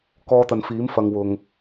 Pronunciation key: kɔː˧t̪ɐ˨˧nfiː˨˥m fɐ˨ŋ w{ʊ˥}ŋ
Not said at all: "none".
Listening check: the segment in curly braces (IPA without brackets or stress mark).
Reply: ʊ˧